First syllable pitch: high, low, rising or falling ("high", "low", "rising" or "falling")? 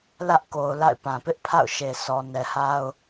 high